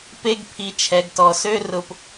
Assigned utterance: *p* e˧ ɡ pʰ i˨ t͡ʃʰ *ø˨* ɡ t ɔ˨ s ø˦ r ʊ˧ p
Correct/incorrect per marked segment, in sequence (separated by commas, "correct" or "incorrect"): correct, incorrect